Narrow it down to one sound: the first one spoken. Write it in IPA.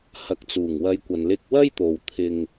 h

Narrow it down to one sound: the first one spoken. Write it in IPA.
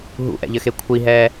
ɦ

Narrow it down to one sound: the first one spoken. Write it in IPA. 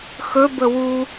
x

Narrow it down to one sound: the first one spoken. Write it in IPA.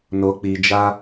n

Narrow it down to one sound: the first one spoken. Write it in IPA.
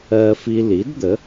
ɜ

